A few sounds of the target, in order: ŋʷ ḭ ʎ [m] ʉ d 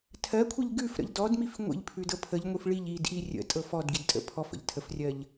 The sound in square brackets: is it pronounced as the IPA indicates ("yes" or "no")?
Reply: no